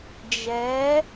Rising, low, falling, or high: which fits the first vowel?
rising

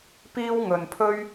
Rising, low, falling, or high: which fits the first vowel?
high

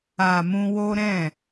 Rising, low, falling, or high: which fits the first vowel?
low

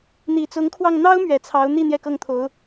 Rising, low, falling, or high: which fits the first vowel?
low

